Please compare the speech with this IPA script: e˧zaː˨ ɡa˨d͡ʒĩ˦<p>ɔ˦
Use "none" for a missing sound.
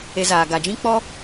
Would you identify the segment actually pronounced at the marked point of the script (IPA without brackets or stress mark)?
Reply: k͡p